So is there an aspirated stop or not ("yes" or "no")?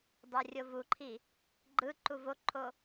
yes